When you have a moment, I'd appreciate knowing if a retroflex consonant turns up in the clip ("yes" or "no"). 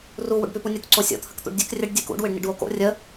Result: yes